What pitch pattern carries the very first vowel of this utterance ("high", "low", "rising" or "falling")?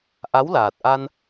rising